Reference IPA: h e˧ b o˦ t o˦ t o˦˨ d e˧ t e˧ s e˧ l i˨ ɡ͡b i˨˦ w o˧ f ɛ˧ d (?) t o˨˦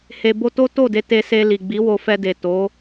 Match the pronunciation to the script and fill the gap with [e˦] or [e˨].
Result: e˨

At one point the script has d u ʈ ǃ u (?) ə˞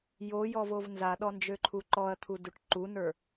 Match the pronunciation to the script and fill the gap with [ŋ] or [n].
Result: n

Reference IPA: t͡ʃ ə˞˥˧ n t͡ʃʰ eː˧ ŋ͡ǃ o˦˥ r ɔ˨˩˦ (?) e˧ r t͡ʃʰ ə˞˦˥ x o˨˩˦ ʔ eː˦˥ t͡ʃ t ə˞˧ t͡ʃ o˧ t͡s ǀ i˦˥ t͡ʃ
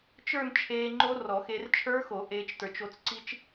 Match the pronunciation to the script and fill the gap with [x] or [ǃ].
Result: x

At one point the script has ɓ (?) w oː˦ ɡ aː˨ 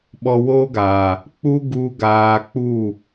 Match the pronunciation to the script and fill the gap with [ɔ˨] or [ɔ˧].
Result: ɔ˧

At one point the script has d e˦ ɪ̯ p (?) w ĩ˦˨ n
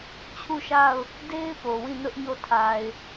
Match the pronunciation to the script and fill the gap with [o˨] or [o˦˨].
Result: o˨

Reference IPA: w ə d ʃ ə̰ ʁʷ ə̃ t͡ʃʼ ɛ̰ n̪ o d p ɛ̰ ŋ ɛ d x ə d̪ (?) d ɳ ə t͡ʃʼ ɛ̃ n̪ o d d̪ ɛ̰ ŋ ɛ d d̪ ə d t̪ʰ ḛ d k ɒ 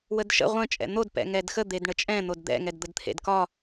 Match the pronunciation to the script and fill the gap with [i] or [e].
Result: e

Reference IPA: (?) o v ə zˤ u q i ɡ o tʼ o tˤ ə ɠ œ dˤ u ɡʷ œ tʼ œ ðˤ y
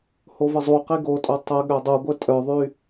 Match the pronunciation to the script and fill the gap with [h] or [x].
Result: h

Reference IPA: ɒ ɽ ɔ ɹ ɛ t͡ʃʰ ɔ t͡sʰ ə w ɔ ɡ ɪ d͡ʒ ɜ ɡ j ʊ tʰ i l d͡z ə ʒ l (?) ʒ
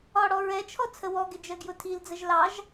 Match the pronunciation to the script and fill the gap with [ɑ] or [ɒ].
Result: ɑ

